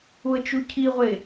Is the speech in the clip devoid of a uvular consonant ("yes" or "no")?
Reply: no